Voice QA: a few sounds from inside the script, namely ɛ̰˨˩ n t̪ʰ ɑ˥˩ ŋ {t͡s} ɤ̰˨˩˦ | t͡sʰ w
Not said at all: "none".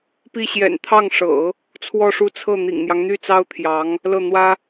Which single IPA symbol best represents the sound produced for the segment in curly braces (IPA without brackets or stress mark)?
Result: ʂ